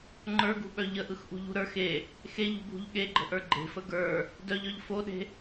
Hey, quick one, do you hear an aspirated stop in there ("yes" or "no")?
no